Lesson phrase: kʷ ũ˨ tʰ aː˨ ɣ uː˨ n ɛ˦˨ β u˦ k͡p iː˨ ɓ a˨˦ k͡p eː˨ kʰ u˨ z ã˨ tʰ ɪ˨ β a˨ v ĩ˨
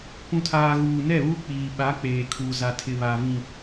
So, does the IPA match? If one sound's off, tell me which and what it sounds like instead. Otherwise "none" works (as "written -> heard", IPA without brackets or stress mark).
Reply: ã˨ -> a˨